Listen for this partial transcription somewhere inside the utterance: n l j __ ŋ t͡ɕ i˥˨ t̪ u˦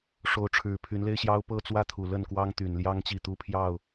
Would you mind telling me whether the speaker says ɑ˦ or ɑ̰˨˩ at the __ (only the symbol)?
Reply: ɑ˦